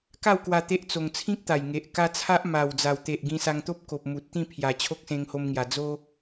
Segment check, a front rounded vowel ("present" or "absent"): absent